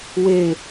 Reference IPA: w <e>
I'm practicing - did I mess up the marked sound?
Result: no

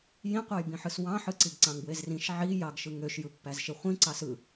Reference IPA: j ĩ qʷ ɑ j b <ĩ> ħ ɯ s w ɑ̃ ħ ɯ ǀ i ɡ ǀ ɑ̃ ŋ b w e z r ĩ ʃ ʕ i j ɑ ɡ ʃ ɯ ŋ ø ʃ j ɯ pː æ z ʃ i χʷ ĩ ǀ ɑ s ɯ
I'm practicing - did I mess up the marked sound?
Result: no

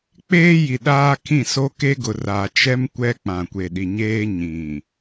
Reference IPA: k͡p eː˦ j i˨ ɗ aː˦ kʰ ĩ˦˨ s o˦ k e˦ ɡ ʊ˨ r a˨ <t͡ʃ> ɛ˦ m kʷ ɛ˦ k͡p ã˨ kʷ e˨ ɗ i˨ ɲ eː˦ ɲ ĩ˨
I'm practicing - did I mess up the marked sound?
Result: no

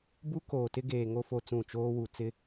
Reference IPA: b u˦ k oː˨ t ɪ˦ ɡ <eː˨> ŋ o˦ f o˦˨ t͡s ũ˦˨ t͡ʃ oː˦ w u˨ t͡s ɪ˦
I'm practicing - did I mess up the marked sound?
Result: no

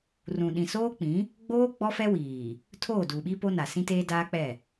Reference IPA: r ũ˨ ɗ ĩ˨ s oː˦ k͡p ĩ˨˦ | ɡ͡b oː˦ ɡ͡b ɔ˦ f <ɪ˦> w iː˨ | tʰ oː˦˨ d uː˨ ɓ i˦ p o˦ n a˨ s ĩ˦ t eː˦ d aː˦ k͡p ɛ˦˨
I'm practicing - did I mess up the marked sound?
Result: yes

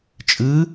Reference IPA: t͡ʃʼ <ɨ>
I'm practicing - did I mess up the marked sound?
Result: no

